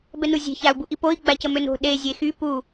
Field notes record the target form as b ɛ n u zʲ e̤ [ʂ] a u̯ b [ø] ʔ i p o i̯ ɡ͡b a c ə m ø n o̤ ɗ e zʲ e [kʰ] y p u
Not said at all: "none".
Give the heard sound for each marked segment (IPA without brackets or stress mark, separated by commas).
ç, u, x